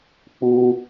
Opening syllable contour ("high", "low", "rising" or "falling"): high